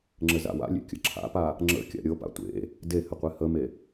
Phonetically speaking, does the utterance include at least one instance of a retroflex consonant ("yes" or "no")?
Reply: no